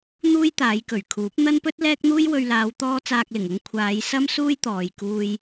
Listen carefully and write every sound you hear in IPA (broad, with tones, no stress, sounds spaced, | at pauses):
n̪ uː˥ j t̪ aː˨˧ j k ɵ˨˩ ɥ kʰ uː˨˥ p̚ n̪ ɐ˥ n p ɵ˥ t̚ l ɛː˥ k̚ n̪ uː˥ j w ɵ˧ ɥ l aː˨˧ w t̪ ɔː˥ t͡s aː˧ k̚ l ɪ˨˩ ŋ ʊ˧ ŋ kʷʰ aː˨˧ j s ɐ˥ m s uː˥ j t̪ ɔː˨ j k uː˧ j